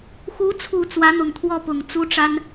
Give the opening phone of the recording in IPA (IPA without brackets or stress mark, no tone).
x